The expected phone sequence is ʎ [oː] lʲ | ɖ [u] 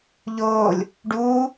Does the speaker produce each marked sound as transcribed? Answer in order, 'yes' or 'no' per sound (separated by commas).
yes, no